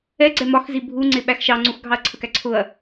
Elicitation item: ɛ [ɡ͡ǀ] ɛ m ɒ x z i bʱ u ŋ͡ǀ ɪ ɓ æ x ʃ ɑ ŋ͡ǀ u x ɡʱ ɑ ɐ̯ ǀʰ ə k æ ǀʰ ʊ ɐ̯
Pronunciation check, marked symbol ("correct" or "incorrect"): correct